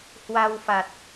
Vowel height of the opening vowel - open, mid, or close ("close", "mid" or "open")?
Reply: open